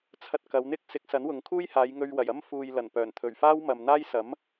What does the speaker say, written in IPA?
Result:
t͡sʰ ɐ˧ t̚ k ɐ˨˧ w n̪ ɪ˥ k̚ s ɪ˨˥ k̚ s ɐ˨˥ n w ʊ˨˧ ŋ kʰ uː˥ j h aː˨˧ j ŋ ɵ˧ ɥ w ɐ˨˩ j ɐ˥ m f uː˨ j l ɐ˨˩ n p œː˨˩ n t̪ʰ ɵ˨˩ ɥ f aː˥ w m ɐ˨ m n̪ aː˥ j s ɐ˨˥ m

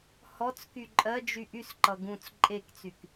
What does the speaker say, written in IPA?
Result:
h ɔ t͡s k y ǃʼ ɜ d͡ʒ y ʔ y s ǃ ʌ ɡ ũ t͡s ǃʼ e k t͡s y k

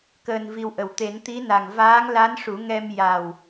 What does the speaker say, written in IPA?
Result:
k əː˧ n v i˧ w ʔ ə˨˩ w t̪ e˨˩˦ n t̪ i˧˥ n a˨˩ ŋ v aː˧˥ ŋ l a˧˥ n ʂ u˨˩˦ ŋ ɛ˧ m j a˨˩ w

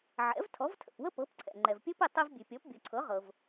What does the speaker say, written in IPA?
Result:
ʕ ɛ̰˩˥ v tʰ ɔ˩˥ v tʰ ə̰˩ p w ə˥ p ɤ˩˥ p ǀʰ ɛ̰˩ ŋ͡ǃ ɛ˩ v pʲ ə˥ p i˥˩ tˤ i˧ v bʲ ʉ˩ pʲ ɔ˩˥ p bʲ ɤ˩ ǀʰ ɤ˩˥ ʁ ɤ˩ v

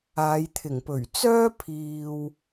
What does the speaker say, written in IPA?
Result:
aː˨˧ j t̪ʰ ɪ˨˩ ŋ p ɵ˨˩ ɥ t͡s œː˥ pʰ iː˨ w

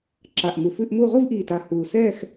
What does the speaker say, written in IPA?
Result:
ǁ a˨˩ ʔ m u˨˩ f ʉ˥˧ ʔ m uː˥˧ ʁʷ i˥˧ v ʔ iː˨˩ t a˨˩ h uː˨˩ s ɛː˥˧ x

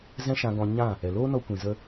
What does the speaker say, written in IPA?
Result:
z ɛ̃˦ ʃ ã˧ ɡ ɔ̃˧ ɲ ã˦˨ | ɛ˨ l oː˦ n ɔ˧ kʷ ĩ˨ z ə˧

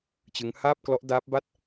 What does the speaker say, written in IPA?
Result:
t͡ɕ ɯ˦˥ ŋ h aː˥˩ p̚ k l ɔ˦˥ ʔ d aː˦˥ p̚ b a˥˩ t̚

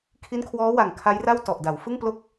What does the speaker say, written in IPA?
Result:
kʰ i˦˥ n kʰ w ɔː˦˥ w a˨˩ ŋ kʰ a˦˥ j r a˥˩ w t ɔ˨˩ ʔ d a˩˦ w f ɯ˥˩ ŋ p l o˥˩ k̚

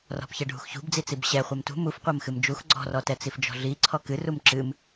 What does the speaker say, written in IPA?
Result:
r ɔ̤ p ç ɛ ɖʱ ṳ x ç ṳ b d͡z i t͡s i b ɕ ɛ χʷ ɛ m t ṳ m u f qʷ ɐ m x ɨ m d͡ʒ u x ɡ͡ǀ ɔ̤ r ɔ t ɛ t͡s i f d͡ʒ ɔ̤ ɮ i ǀʰ ɔ k ɨ r u m ǁ ɨ m

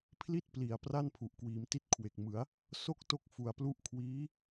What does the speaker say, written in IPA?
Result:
pʰ l i˥˩ t̚ p l i˩˦ a̯ p r a˥˩ n pʰ u˨˩ ʔ k w iː˩˦ m t i˥˩ t̚ kʰ w e˨˩ k̚ m ɯ˩˦ a̯ | s o˥˩ k̚ t o˥˩ k̚ f u˨˩ a̯ p l u˦˥ ʔ kʰ w iː˦˥

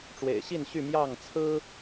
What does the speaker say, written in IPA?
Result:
ʈ͡ʂ w ḛ˨˩ ɪ̯ ɕ i˥˨ n ɕ y˥˨ m j ɑ˥˨ ŋ t͡sʰ ɹ̩˦

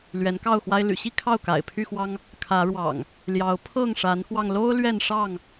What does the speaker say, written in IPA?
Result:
l ɥ ɛ˨˦ n k ɑ˥˨ ʊ̯ x w a˦ ɪ̯ l y̰˨˩ ɕ i˥˨ kʰ ɑ˥˨ ʊ̯ k a̰˨˩ ɪ̯ pʰ y˥˨ x w ɑ˦ ŋ | kʰ ä˨˦ ɻ w ɑ̰˨˩ ŋ | l j ɑ˨˦ ʊ̯ pʰ ɤ˥˨ ŋ ʂ a˨˦ n x w ɑ˧ ŋ l o˦ ʊ̯ l ɥ ɛ˥˨ n ʂ ɑ˥˨ ŋ

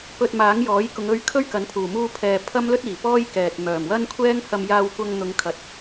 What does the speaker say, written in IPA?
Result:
p ɵ˧ t̚ m aː˨˥ ŋ j ɔː˨˥ j k ʊ˨˧ ŋ ɵ˧ ɥ kʰ ɵ˥ ɥ k ɐ˨˥ n pʰ uː˨˩ m uː˧ pʰ ɛː˨ pʰ ɐ˥ m l ɵ˥ t̚ iː˨˩ p ɔː˥ j k ɛː˨ t̚ m œː˨˩ m w ɐ˥ n kʷʰ ɛː˥ ŋ h ɐ˧ m j aː˧ w kʷ ɐ˧ ŋ n̪ ʊ˨˧ ŋ kʰ ɐ˨ t̚

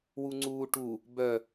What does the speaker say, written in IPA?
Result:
w u ŋ͡ǀ uː ʈ u | b œ

